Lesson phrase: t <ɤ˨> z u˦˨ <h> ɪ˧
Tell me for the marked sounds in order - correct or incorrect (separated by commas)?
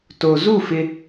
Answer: incorrect, incorrect